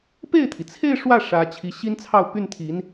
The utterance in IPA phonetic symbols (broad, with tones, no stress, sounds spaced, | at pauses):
p e˥˩ ɪ̯ t̪ʰ i˩ t͡sʰ e˥˧ ɪ̯ ʂ w ä˥˩ ʂ ä˧˥ t͡ɕʰ i˧˥ ɕ i˥ n t͡sʰ ɑ˥˧ ʊ̯ p y˥˩ n t̪ʰ i˧˥ n